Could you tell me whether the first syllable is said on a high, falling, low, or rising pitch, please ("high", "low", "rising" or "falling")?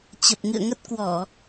low